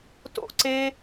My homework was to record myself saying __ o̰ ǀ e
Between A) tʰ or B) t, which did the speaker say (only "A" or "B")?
B